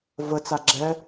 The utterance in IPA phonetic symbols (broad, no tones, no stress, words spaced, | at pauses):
vət͡sa ɡ͡ǁɛ